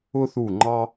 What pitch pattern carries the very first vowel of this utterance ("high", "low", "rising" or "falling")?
high